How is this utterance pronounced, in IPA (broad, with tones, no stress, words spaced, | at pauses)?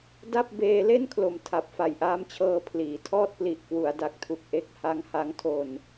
da˥˩p̚ beː˧le˥˩nkʰlo˨˩m tʰa˨˩p̚fa˨˩jʔaː˦˥mt͡ɕʰɤː˧ pʰliː˩˦tʰɔː˥˩t̚ pli˨˩ʔ kwu˩˦a̯da˨˩k̚tʰu˨˩k̚ʔe˦˥k̚ ha˦˥ŋha˦˥ŋtʰo˧n